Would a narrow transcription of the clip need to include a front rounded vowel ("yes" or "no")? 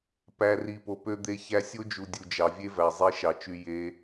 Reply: yes